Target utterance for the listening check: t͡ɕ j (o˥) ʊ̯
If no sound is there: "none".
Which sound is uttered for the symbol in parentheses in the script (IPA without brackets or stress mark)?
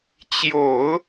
o˨˩˦